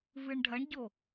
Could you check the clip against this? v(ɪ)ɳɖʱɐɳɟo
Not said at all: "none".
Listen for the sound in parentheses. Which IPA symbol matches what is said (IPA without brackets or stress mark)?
ɨ